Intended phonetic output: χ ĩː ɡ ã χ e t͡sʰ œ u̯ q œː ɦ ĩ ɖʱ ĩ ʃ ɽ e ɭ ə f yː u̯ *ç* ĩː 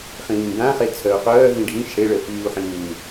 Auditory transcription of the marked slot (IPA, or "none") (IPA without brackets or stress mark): ħ